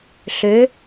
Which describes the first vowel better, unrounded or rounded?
rounded